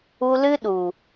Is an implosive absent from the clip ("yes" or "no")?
no